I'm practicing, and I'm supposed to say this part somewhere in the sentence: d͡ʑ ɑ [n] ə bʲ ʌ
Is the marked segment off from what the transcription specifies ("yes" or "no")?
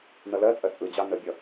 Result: no